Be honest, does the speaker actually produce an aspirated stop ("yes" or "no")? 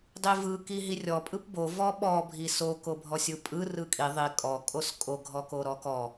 no